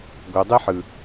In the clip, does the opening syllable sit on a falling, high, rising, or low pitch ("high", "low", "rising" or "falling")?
low